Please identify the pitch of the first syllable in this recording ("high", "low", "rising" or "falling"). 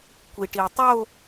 low